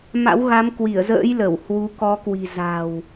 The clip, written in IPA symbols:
m a̰˧˥ w ɣ a˨˦ m k w i˧˩ ə̯ z ə̰ː˧˥ j l ə˧˩ w h w u˨˦ k ɔ˨˦ k w i̤˨˩ z a̤˨˩ w

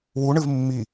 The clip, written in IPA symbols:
w u ɳ ɨ v mː i

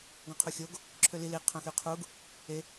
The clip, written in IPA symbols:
ɡ ɔ̃ qʰ u xʲ o ɡ | ǁʰ ø l i l i qʰ œ̃ x y qʰ u ɡ | e

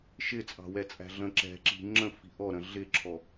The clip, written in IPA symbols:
ʃ ɪ t͡sʼ ɑ̤ w ɛ t͡sʼ æ̤ ɮ ə̃ ǁ ɛ̤ ǁ i̤ ŋ͡ǁ ə̃ f i̤ ʔ ɔ ɾ ə̃ ɮ ɪ ǁʰ ɔ

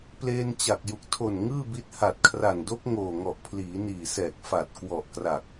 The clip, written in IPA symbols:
p l eː˧ n t͡ɕ a˨˩ k̚ j u˨˩ k̚ tʰ o˨˩ n ŋ ɯː˥˩ b i˦˥ t̚ h a˨˩ t̚ kʰ r a˨˩ n d o˦˥ k̚ ŋ oː˨˩ ŋ ɔ˨˩ ʔ pʰ l iː˩˦ n iː˨˩ s ɛː˨˩ k̚ f a˨˩ t̚ k w ɔ˨˩ ʔ k r a˨˩ k̚

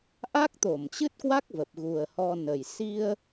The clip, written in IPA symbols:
ʔ a˦˥ k̚ t̪ o˧˩ m t͡ɕ ɨ˦˥ t̚ k w a˦˥ k̚ v ə˨˩ p̚ ɣ u˨˩ ə̯ h ɔ˧ n ə˨˩ j s i˧ ə̯

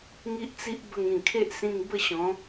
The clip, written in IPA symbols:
ŋ i˦ ʔ t͡s i˦ ʔ b ə˧ ŋ ĩ˨˩ kʰ e˦ ʔ s ĩ˧ ŋ b ə˥˧ ɕ ɔ̃˨˦

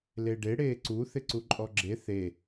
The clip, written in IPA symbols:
l e ɖ e ɽ eː ǀ u θ ɪ ǀ u ǃʼ ɔ ɡ͡ǁ e θ e

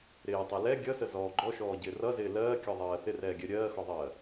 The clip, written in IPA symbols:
ɾ ɪː tˤ ɛ l ɛ ɡʲ ʌ s ə z ɔː ɡ͡ǃ ɔ ʃ ɔː ɟ ɪː r ʌ z ɪː l ɜː kʲ ɔ ðˤ ɜː θ ɪ r ɛː ɡʲ ɜ ɾʲ ɜː x ɔ ðˤ ɜː

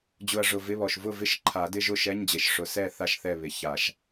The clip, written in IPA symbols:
d͡ʑ ʊ˨˩ ɐ̯ ʐ ʊ˨˩ v ɪ˧˥˧ β ɔ˨˩ ʃ v ʊ˥˨ v ɪ˦˥ ʃ ǃʰ a˨˩˦ d ɪ˧˥˧ ʒ ʊ˥˨ ʃ ɛ˧˥˧ ɲ d͡ʑ e˨˩ ʃ ʂ ʊ˨˦ s ɛ˥˨ θ a˥˨ ʃ θ ɛ˥˨ β ɪ˨˩˦ ç a˨˩˦ ʃ

